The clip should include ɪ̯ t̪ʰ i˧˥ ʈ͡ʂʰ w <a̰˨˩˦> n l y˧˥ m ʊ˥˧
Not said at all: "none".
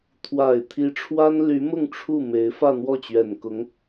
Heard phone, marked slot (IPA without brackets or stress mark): a˥